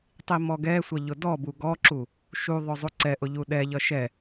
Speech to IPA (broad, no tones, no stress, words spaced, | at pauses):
tˤimɔɡɛsʷʌ ʎʊdɔbu ɡɔǁu | ʃuðˤʊ zˤuǀɛʔʊ ʎuɗɛʎʌ ʃɛ